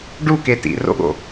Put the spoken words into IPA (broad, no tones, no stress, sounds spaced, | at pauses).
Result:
ɖ u k e t ḭ r o̰ ɠ o̰